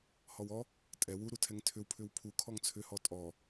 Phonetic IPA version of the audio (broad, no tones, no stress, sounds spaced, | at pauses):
h ɔ w ɔ | tʼ ɛ w u ɾ u tʰ ɛ ŋ tʰ ʏ w pʰ ʏ w pʰ u kʰ ɔ ŋ t͡sʰ ʏ h ɔ tʼ ɔ